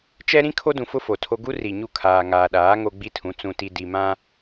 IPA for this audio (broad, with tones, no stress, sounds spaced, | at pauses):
t͡ʃ ɛ˦ ɾ ĩ˦ kʰ o˦ d ũ˨ f ʊ˦ f o˨ tʰ o˦ ɡ u˦ r i˨ ɲ u˦˨ kʰ aː˨ ŋ aː˨ ɗ aː˨˦ ŋ o˦ ɡ͡b i˦ tʰ ũ˨˦ t͡s ũ˨ t i˨ d i˨ m ã˦